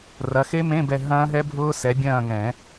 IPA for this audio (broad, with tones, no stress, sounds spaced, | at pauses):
r ɐ˨˦ x e˦˥ m ẽ˧˥˧ b ɛ˦˨ ɦ ɐ̃ː˦˥ ɦ ɛ˦˥ bʱ ʊː˦˥ s ɛ˨˦ bʲ ɐ̃ː˦˨ ŋ ɛ̃˨˩˦